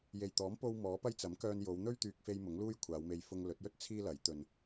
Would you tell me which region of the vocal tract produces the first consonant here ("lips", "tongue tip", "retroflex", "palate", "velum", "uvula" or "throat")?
palate